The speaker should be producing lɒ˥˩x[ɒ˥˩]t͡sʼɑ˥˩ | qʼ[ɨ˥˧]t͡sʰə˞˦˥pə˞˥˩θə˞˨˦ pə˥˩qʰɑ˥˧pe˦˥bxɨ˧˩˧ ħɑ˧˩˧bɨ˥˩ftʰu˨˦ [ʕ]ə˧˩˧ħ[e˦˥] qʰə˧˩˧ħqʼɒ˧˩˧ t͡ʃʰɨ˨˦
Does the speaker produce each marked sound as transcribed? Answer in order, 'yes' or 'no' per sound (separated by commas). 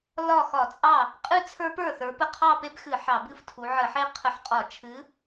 no, yes, yes, yes